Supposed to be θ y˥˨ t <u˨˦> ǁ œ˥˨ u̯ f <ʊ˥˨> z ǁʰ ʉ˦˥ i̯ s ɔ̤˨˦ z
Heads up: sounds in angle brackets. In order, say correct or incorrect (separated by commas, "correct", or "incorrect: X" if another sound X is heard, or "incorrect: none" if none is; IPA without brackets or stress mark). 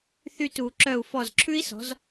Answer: correct, incorrect: ɔ˥˨